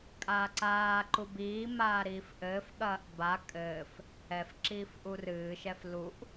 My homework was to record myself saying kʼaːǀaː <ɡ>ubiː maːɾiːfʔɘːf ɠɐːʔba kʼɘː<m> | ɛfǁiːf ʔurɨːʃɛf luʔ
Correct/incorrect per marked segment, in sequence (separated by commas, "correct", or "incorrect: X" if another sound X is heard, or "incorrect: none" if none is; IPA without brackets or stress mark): incorrect: ǃ, incorrect: f